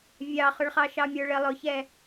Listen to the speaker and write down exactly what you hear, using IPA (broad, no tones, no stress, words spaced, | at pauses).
vʲɑχʊɭχɑ ʃɑmʲə˞ɭɪ lˠʊçɛ